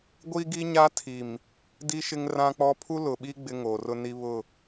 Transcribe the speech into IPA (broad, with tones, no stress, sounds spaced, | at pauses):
ɡʷ i˦ ɡ i˦ ɲ a˦ tʰ i˨ m | d i˦ ʃ ɪ˦ ŋ r ã˦ k͡p ɔ˦ pʰ u˦ l ʊ˨ ɓ i˦ ɡ͡b ɪ˦ ŋ oː˨ r ʊ˦ n i˦ β ʊ˦˨